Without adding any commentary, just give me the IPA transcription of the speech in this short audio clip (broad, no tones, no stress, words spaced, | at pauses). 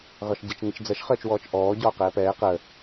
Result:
ɣɒʃɟət͡ʃ ŋət͡ʃd͡zɜʃ χəːt͡ʃwɔːt͡ʃʔɔː ɟɒːqɛːpɛː qə